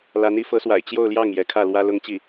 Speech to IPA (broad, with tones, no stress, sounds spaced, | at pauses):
l a˧˥ n i˧˥ f ɤ˧˥ s w a̰˨˩ ɪ̯ t͡ɕ j o˥˧ ʊ̯ l j ɑ˥˩ ŋ j ɛ˧˥ kʰ ä˥˩ l w ä˥ l ʊ˥ ŋ t͡ɕ i˥˩